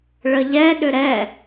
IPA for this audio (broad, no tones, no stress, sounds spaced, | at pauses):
ɭ ə ʎ ɛ ɗ ʏ ɾ ɛ